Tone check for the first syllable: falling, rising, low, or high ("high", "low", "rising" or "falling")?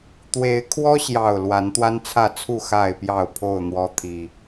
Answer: rising